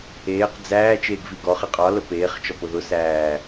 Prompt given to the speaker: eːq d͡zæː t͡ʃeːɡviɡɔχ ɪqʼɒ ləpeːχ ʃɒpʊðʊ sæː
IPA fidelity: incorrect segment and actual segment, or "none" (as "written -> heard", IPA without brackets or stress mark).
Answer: ʃ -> t͡ʃ